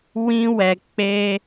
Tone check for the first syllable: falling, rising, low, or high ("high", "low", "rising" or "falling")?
high